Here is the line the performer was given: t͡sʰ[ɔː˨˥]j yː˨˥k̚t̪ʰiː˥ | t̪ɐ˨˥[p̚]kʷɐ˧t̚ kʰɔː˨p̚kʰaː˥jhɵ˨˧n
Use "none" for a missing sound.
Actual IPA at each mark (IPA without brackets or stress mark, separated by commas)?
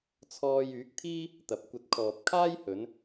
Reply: ɔː˧, p̚